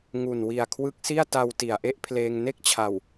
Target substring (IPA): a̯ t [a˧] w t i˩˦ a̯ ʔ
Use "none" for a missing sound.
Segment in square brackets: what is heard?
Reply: a˧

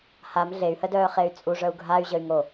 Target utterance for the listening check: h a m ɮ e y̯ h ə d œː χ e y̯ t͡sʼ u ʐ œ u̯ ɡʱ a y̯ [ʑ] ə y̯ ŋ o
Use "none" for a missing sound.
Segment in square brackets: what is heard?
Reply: ʑ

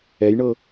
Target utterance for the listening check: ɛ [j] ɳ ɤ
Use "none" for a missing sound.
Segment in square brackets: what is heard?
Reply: j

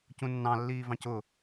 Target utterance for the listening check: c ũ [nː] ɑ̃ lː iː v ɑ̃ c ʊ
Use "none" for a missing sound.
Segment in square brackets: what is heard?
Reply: nː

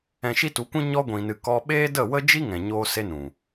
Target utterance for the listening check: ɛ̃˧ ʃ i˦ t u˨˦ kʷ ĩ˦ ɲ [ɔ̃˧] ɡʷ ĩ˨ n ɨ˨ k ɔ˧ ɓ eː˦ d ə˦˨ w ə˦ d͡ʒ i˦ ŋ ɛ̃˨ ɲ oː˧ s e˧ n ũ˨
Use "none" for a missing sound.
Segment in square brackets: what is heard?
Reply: ɔ˧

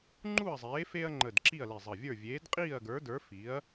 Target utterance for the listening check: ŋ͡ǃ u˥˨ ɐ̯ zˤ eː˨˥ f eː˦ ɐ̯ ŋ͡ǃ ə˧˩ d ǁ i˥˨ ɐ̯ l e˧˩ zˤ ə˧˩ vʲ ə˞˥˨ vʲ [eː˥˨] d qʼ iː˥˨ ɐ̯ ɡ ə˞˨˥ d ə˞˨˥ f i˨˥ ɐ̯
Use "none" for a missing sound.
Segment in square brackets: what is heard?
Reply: eː˨˥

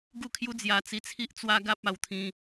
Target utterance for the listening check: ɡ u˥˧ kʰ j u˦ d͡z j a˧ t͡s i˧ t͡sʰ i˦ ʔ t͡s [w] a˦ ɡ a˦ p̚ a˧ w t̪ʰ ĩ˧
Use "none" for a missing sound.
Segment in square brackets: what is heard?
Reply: w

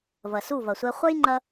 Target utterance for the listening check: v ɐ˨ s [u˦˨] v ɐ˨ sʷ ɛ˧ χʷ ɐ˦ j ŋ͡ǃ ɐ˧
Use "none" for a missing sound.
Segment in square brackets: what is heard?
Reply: u˦˨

